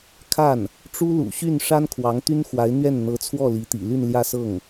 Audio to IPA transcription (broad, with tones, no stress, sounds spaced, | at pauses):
kʰ a˥˩ n | ʈ͡ʂ u˥ l ṵ˨˩ ɕ y˥˩ n ʂ a˥ n kʰ w ɑ˧˥ ŋ t̪ y˥ n x w a˧˥ ɪ̯ n̪ ɥ ɛ˥˩ n n̪ ɤ˧˥ t͡sʰ w ɔ˥˩ l i˧˥ t̪ ḭ˨˩ l y˥˧ n l j ä˥˧ s ɤ˥˩ ŋ